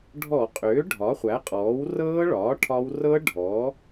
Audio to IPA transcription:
ɖʱɔ˧˩˧qʼʏː˩˥ ɖʱɒ˩˥χʷæ˩˥qʼɔː˩˥w rɤː˦˥ɭɒː˩˥ ʈʰɒ˦˥w rɤ˦˥ ɖʱɔ˩˥

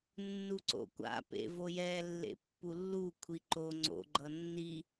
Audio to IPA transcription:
nːuǀo̰kʷa̰ pḛvojɛ lːḛpːulːu kʷʰiǃo ŋ͡ǀo̰ ɡ͡ǃʌnːi

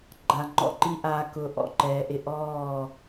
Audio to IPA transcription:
ɡ͡ǃa˨ŋ͡ǃɔ̰˨ǃi˦ ʔaː˨ kʊː˨ʔɔ̰˨ǃɛː˨ʔɪ˦ ʔɔː˦˨

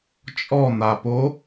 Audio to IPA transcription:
t͡ʃʼɔn̪apo

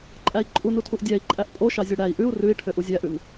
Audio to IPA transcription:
ǃʼæi̯ǃʼunutʰuʔ dʲæi̯ǃʼæʔ pʼoʃɑ zʲœɽæi̯ ʔʉu̯ rʉi̯ʈʰø ʔuzʲæʔʉn

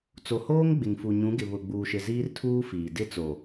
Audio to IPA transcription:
t͡so˨hoː˦ŋ ɡ͡bɪ˨ŋfu˨ ɲũ˨˦ɡɪ˨ βʊ˨ɡ͡buː˨ʃɪ˨ ziː˦rtʰuː˦fiː˨ dɪ˦˨t͡so˨

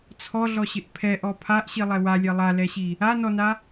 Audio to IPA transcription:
t͡sʰɔɮɔɕɪʔ pʰɛʔɔ pʰaʔɕilˠɛ walʲɛ lˠalɛɕi | anɔna

